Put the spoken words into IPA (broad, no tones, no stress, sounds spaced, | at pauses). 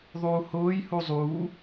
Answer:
ðˤ uː h ʊː j h u zˤ uː